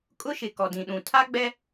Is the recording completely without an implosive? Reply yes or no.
no